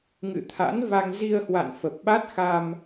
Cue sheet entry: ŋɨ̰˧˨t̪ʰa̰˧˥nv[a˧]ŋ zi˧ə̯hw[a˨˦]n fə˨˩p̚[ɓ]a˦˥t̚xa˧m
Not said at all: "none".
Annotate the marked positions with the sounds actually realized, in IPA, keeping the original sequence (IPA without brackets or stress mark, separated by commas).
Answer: a˧, a̰˧˨, ɓ